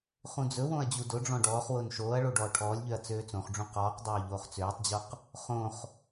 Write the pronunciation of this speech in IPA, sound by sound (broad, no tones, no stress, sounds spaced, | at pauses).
χ ũ d͡z ɵ w õ ɐ̯ d͡ʑ u d ʊ ɖ͡ʐ ɔ̃ ɖ ɔː χ w ʊː n ʃ oː ɐ̯ ɭ o ɖ ɔː ʈʰ ɔː lʲ ʎ ø ɐ̯ t͡s øː t͡s õ χ ɖ͡ʐ ũ q ɔː q dˤ oː ʎ oː χ t͡s øː tˤ d͡ʑ o q | χ õ χ